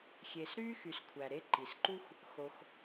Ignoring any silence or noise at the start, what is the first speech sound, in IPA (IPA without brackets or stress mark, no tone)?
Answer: xʲ